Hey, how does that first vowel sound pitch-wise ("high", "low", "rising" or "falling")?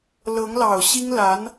rising